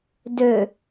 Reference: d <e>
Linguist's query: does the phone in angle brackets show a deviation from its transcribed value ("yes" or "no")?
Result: yes